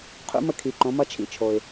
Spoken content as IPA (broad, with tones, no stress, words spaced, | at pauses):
qʰṵ˧˥mə˧kʰi˩ ǃõ˩˧mʌ˧t͡ʃʰḭ˧˥t͡ʃʰo˩ɪ̯